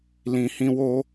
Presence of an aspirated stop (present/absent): absent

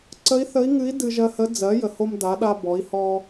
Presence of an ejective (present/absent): absent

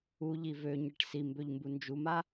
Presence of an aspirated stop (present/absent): absent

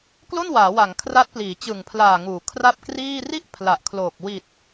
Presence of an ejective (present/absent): absent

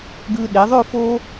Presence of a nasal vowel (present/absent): absent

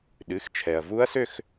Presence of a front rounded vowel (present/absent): present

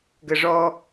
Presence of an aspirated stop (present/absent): absent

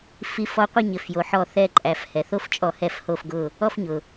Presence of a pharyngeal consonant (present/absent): present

